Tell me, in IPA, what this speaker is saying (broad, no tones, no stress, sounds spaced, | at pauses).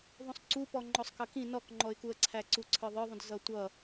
ðˤ ũ sˤ ǀ u p ɔ ŋ͡ǃ ɔ sˤ k ʌ k ĩ n ɔ k ŋ͡ǃ ɔ ɪ̯ k u ə̯ ǀʰ æ ǀ u ǀʰ ə˞ ðˤ ə˞ ðˤ ũ d z ʌ tʷ ʌ